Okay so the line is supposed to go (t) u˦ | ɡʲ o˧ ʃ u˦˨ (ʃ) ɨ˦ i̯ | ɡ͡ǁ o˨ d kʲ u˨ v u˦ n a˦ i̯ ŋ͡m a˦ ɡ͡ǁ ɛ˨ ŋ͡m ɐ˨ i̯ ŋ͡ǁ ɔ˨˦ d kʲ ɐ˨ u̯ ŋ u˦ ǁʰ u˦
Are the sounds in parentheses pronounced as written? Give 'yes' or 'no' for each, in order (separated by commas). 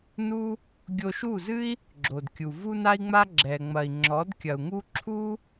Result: no, no